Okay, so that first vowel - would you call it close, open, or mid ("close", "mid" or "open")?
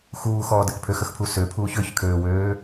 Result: close